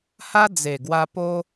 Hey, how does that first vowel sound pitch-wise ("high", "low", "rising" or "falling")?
high